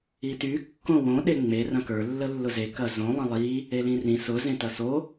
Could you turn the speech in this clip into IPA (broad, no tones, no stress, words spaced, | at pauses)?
ity kːõwõ ɗeŋ͡me rɐ̃kə˞ lːəlːʊze kɐzõ lˠə̃lˠi | elĩrĩ sʊ zẽtɐso